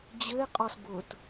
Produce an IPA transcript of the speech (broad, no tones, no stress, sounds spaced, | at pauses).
d͡ʑ ɘ e̯ qʼ ɔ s b ʊ t